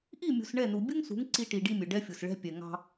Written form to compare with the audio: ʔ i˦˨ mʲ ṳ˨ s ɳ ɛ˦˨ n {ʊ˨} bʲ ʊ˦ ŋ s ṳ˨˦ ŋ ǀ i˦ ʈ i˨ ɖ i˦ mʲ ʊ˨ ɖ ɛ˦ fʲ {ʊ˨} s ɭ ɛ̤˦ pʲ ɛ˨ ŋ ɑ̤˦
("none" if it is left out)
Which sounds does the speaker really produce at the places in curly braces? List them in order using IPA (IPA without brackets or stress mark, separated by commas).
u˨, ʊ˨